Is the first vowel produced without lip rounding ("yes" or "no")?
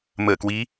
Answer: yes